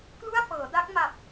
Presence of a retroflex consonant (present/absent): absent